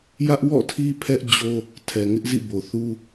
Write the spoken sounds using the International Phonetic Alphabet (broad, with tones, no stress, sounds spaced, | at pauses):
j ä˦ ʔ w ɔ̰˦˨ tʰ i˦ pʰ ɛ˦ ʔ d͡ʑ o˦ | tʰ ɛ˨ ŋ ɪ˦ ʔ z ḭ˦˨ b o˨ θ u˦